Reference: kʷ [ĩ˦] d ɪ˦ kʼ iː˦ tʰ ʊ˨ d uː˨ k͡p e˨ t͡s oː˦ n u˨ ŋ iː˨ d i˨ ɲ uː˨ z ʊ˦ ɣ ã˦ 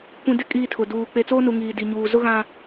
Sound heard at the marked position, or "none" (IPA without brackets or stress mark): ĩ˨